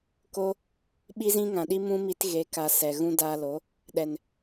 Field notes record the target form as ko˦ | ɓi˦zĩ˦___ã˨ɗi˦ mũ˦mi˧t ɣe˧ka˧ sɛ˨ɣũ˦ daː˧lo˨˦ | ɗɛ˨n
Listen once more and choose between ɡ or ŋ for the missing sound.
ŋ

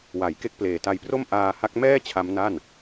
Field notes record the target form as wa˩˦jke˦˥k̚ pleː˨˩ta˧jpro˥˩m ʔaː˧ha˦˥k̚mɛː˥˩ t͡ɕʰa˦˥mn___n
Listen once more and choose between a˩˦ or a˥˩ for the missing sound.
a˥˩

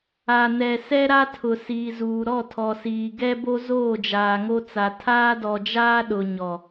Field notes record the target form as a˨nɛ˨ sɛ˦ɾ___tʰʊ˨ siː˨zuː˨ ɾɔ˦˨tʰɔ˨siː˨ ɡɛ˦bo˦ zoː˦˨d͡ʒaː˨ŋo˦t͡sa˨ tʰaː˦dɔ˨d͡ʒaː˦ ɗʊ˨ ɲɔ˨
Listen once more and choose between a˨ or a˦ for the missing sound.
a˦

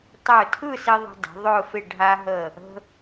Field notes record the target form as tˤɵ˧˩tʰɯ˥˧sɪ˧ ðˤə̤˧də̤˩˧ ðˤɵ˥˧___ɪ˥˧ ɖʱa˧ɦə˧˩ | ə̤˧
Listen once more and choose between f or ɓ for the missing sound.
f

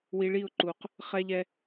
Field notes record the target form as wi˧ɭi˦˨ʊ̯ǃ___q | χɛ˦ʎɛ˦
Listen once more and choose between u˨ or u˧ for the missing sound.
u˨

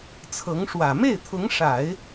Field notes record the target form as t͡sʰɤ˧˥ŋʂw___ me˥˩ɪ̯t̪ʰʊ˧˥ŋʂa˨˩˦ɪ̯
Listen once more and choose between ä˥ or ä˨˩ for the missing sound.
ä˨˩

